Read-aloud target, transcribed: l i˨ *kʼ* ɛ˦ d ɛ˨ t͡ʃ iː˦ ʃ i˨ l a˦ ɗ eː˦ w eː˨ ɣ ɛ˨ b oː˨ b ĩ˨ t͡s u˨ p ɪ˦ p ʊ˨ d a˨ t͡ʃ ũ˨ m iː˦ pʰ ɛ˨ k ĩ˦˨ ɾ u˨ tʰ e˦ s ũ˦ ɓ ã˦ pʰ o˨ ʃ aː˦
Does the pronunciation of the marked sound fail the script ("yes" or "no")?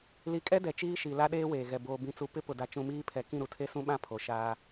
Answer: no